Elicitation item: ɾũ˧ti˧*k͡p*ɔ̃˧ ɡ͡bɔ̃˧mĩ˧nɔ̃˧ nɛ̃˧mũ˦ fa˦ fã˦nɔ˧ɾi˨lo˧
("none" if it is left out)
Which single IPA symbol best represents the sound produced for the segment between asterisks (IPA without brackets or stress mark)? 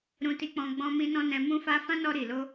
k͡p